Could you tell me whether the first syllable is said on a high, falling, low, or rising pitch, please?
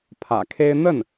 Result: low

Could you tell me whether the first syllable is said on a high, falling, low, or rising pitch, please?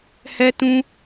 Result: high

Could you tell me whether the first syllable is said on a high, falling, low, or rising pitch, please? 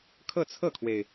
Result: falling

